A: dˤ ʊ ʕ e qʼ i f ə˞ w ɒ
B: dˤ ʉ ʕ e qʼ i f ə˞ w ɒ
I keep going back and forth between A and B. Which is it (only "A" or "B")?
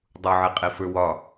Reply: A